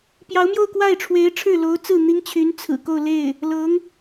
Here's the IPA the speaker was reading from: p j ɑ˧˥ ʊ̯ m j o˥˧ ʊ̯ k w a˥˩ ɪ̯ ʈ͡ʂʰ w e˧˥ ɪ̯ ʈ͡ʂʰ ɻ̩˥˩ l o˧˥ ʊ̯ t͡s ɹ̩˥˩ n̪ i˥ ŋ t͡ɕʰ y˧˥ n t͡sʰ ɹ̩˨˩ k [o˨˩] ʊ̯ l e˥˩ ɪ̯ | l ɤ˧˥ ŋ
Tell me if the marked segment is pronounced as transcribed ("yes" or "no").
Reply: no